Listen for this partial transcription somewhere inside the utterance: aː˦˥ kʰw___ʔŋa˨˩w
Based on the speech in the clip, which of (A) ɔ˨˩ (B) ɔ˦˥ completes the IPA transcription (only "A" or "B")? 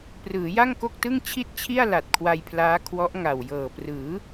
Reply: B